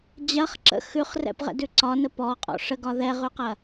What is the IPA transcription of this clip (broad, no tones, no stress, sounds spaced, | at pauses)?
d͡ʑ ɐ χ ǁ ə̰ x ʉ χ r ɛ̰ p ʁ ɛ̰ d ʉ ǀ ɒ n ə p ɔ qʼ ɔ̰ ʂ ə ɡ ɒ ð ɛ ʁ ʉ q ɐ